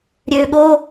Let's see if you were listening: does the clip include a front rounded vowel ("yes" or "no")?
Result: yes